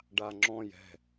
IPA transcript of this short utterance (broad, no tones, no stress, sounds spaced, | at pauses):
ɖ a ŋ͡ǁ ɔ̃ j ɛ̤